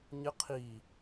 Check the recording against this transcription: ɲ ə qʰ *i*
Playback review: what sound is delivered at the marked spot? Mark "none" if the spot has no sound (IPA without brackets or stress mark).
i